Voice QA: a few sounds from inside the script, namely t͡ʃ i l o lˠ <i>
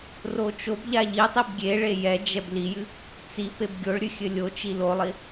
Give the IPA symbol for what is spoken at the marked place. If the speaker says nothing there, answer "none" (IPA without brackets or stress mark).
i